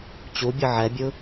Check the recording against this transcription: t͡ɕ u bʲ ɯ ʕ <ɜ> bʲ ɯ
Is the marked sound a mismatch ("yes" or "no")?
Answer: yes